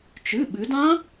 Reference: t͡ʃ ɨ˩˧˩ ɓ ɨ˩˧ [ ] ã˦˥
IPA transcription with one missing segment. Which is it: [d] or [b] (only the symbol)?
d